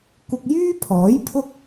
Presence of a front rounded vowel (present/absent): present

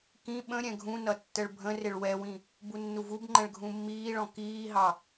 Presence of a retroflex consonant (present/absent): present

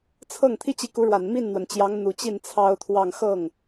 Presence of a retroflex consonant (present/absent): present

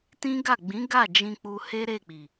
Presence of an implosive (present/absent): absent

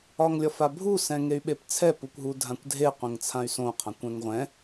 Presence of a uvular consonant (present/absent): present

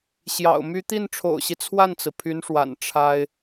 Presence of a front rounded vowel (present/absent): present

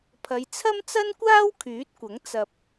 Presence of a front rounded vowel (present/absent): present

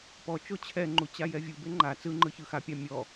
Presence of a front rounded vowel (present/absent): absent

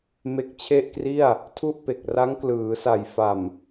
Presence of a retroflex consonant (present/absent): absent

